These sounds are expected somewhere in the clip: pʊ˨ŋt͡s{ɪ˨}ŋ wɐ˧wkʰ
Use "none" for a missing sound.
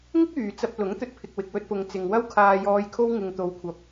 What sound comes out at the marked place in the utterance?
ɪ˨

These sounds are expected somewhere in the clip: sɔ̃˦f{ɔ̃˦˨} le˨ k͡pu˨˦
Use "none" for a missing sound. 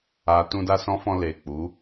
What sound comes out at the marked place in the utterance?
ɔ̃˧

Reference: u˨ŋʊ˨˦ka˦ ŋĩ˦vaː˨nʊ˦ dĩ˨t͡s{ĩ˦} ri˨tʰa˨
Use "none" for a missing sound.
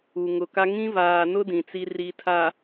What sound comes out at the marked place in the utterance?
i˦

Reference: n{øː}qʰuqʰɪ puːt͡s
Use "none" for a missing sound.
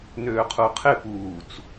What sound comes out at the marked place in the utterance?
øː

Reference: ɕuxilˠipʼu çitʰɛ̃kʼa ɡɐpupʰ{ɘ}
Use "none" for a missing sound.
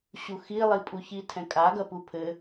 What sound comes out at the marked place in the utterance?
ɘ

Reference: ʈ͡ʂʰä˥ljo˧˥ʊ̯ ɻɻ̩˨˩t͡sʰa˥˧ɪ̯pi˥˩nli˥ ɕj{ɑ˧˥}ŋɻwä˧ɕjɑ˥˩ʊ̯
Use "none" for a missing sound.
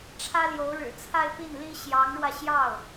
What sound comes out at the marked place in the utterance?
ɑ˧˥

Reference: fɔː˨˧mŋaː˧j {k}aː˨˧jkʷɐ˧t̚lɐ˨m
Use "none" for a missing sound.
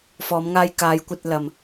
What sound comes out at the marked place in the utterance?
k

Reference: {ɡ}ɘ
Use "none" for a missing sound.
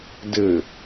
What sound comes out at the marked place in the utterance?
d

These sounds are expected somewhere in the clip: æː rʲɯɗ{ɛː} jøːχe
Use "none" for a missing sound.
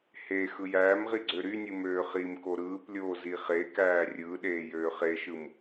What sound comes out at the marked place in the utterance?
eː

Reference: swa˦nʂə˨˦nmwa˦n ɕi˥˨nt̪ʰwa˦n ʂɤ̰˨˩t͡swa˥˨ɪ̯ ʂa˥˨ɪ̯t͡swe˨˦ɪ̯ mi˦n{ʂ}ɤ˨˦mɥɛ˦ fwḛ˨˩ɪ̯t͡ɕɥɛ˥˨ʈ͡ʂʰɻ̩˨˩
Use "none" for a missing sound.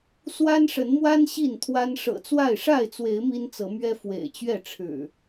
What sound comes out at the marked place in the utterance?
t͡s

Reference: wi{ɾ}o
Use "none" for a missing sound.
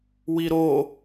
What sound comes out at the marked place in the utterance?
ɾ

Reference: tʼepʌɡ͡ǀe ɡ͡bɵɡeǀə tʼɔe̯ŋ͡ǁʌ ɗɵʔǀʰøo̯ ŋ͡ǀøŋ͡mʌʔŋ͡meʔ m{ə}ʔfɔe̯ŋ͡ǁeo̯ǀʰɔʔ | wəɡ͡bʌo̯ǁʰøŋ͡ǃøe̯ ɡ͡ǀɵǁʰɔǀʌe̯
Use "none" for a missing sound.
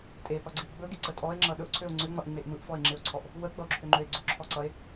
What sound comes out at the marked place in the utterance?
ɯ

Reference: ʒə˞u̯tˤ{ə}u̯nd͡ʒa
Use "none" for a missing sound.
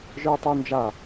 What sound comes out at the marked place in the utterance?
ə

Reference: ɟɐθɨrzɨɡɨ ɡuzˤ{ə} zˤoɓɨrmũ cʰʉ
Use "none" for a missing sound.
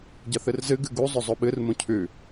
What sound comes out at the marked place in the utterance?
ɵ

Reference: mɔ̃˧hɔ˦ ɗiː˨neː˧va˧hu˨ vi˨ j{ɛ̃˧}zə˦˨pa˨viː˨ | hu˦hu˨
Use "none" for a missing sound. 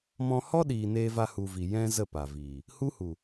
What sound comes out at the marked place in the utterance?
ɛ̃˦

